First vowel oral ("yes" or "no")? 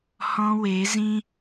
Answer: no